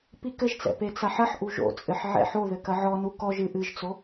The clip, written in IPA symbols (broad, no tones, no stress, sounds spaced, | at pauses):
p i k ɘ ʒ t͡s ɛ̰ p e t͡s a ħ ɐ ħ ʔ u ʒ o̰ t͡sʼ ɘ ħ ʕ ɛ̰ ħ o ð ɘ k ɐ ʕ ɔ n u k ɔ ʒ ɨ ʔ ɨ ʒ t͡s o